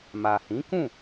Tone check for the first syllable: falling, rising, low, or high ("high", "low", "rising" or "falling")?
low